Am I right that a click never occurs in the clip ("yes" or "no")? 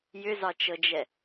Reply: yes